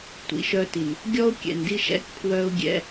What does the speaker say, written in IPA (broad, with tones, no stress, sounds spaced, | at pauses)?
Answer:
tʷ ḭ˨ ʃ œ˦ t i˨ n | ɡʲ ɔ˦ ʊ̯ kʲ ɛ̰˨ n d i˦ ʃ ɛ̰˦ k pʰ w œ˦ ʊ̯ ɡʲ ɛ̰˦